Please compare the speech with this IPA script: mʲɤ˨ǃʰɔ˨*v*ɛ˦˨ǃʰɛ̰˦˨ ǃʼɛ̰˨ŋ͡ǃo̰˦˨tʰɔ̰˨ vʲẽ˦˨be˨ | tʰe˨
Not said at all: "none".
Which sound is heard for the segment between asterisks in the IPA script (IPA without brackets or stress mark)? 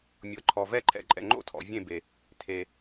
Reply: v